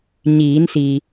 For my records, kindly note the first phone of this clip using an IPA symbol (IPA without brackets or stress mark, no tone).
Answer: ɲ